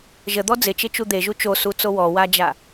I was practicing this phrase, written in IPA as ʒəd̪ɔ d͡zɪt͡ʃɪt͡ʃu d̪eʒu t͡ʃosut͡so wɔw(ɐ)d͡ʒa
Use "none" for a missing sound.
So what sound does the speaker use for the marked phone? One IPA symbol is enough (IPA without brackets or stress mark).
a